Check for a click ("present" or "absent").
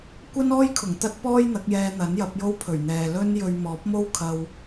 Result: absent